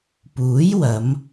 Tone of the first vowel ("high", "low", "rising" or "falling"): rising